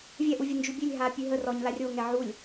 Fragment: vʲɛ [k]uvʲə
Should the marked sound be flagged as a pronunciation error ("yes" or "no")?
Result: yes